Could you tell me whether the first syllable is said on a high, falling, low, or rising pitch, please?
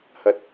rising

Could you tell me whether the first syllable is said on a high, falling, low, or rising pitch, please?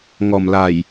low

